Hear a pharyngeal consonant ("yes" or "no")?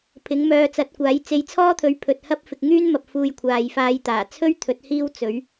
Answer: no